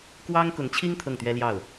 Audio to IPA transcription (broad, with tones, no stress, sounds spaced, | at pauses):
k w ɑ˥ ŋ k ʊ˧˥ ŋ t͡ɕʰ i˥ ŋ t̪ʰ ɤ˥˩ ŋ t̪ ɥ ɛ˥ l j ɑ˥˩ ʊ̯